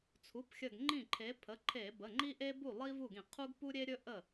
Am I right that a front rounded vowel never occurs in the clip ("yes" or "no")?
yes